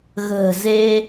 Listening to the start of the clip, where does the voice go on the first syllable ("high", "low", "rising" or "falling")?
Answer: low